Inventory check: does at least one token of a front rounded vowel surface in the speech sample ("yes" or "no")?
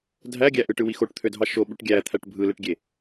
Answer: yes